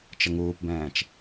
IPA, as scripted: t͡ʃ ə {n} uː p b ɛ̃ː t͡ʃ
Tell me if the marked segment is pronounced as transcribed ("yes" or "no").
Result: no